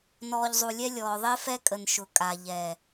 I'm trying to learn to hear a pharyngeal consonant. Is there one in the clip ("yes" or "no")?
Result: no